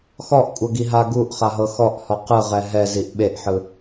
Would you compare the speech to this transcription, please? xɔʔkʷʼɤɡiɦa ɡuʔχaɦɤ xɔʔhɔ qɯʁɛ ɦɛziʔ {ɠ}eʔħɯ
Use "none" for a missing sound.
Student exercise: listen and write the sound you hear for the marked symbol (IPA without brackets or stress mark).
ɓ